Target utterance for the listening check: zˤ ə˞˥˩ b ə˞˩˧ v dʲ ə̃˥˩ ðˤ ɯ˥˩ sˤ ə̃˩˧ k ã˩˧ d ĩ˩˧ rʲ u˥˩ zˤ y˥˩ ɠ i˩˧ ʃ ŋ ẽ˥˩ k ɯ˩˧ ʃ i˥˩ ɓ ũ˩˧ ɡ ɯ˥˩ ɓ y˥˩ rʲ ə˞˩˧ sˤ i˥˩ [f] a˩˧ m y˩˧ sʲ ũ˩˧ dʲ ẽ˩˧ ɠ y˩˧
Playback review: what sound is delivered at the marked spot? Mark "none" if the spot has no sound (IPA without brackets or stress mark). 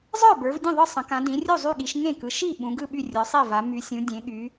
v